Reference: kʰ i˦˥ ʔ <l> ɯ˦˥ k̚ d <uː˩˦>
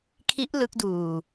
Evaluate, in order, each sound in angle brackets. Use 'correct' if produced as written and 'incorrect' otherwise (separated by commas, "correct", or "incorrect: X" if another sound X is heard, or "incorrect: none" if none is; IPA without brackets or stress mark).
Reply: correct, incorrect: uː˧